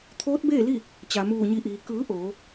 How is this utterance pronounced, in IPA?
t̪ʰ oː˧˥ t̚ b eː˥˨ l i˥˨ | t͡ɕ a˩ m uː˧˩ ɲ i˧˩ ʔ iː˩ k ɯː˩˧ ʔ oː˩˧

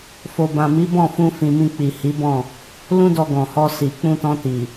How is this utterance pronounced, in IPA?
f o˨ b ã˨ m i˨˦ b ɔ̃˦˨ f ũ˧ f ĩ˨ m ĩ˧ k͡p i˨ h i˨˦ b ɔ̃˦˨ | l ũ˦ d ɔ˧ ɡ ɔ̃˨ h ɔ˧ s i˨ k͡p ũ˧ t ɔ̃˧ t i˨

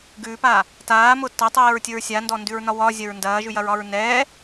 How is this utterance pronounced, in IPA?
ɡ ʉː p aː | t aː m ʊ t ɐ tˤ eː ɹ tʲ ʊ ɹ sʲ a n d ɔ n d ʉ ɹ n ɒ w ɒ zʲ ɐ ɹ n d ɐː ʒ ʉ j ɐ ɹ ɒ ɹ n ɛː

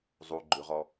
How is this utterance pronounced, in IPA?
zˤ u ɡ͡ǃ ʉ ʁ ɔ

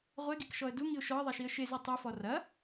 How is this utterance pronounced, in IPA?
ʁʷ e ɡ i k ʃ ɔ ə̯ d u ŋ i ʊ̯ ʃ ɔ ə̯ ðˤ ɛ ʃ i ə̯ ʃ e z i tˤ u f ɔ r ɐ

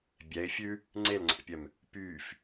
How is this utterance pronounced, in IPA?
bʲ ɛ ɪ̯ fʲ ʉ | ŋ͡ǀ e l ŋ͡ǀ æ̰ pʲ œ m | p yː f

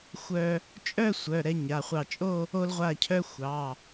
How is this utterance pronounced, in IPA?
xʷ œ˧ | t͡ʃʼ œ˥˧ sʷ œ˩˧˩ ɾ ɛ˧ ɲ a˩˧˩ χʷ ɑ˧˩ t͡ʃʼ o˥˧ | o˧ l ʁʷ a˧˩ cʰ œ˧ xʷ ɑ˩˧˩

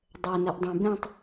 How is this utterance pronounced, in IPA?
dˤ ɛ n ɛ ʔ dˤ ũ b ɛ̃ tˤ

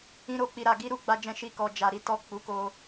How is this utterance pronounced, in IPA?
ĩ˦ ɾ o˧ k͡p i˧ ɾ a˧ ɡ i˦ ɾ u˦ ɡ͡b a˦ d͡ʒ ɛ̃˦ ʃ i˦˨ k ɔ˧ d͡ʒ a˧ ɾ i˦ t ɔ˦˨ k͡p u˨˦ k o˧

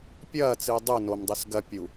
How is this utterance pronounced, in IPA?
pʲ ɐː t͡s ɨː dˤ u n o m dˤ ʉ s ɡ ɐ pʲ u

